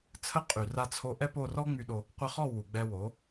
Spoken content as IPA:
t͡sʰə˦ qʼy˧ra˦ t͡sʰo˧ʔɛ˦po˦˨ rɔ˦ŋ͡my˧ɗo˧ | qʷə˦ χɔ˦˨ wu˨ɡ͡bɛ˧wo˨˦

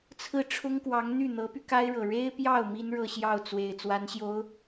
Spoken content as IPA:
t͡sʰɹ̩˥˩ ʈ͡ʂʰʊ˥ŋkwɑ˧˥ŋn̪y˥˩ n̪ɤ˧˥py˧ka˥ɪ̯ɻɤ˨˩ ɻe˥ɪ̯pjɑ˥˩ʊ̯ mi˥nɻɤ˥˧ɕjɑ˥˩ʊ̯ t͡swe˨˩ɪ̯ t͡swa˧˥nɕjo˧˥ʊ̯

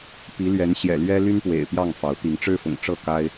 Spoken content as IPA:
pi˨˦lɥɛ˨˦n ɕjɛ̰˨˩lɥɛ˦ly˦npwḛ˨˩ɪ̯ pjɑ˥˨ŋfɑ˨˦ʊ̯t̪i˨˦ŋ ʈ͡ʂɻ̩˦fʊ̰˨˩ŋʈ͡ʂɤ˥˨ ka˦ɪ̯

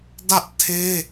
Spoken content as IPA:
dä˦ʔtʰe˦

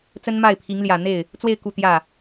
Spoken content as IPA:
t͡sə˥nma˥˩ɪ̯pʰi˧˥ŋ ljä˨˩n̪e˥˩ɪ̯ | t͡swe˥˧ɪ̯ ku˥˧t̪jä˥˩

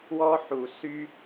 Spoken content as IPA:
wɔ˧ ħu˨sy˧

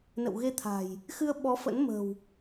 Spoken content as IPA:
nə̰˧˨wɣe˧t̪ʰa̤˨˩j | xɨ˧ə̯ɓɔ˨˦fə̰˧˥nmə̤˨˩w

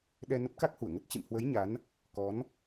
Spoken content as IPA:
ɗɛ˧nə˦˥p̚ka˦˥k̚hu˧˩ə̯ ŋə˦˥t̚ t͡ɕɨ̰˧˨mhwə˨˦j ɲa˨˦n | kɔ˨˦n

